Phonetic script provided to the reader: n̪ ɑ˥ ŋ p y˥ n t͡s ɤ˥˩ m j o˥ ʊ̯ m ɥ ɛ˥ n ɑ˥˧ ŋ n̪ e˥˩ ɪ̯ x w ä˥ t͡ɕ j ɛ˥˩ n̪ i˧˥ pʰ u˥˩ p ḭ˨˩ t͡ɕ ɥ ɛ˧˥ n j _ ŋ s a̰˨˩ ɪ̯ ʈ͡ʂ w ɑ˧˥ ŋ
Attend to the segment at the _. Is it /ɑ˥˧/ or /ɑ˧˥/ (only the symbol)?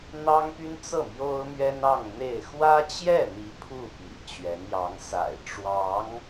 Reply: ɑ˧˥